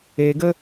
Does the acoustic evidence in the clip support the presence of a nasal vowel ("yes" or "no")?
no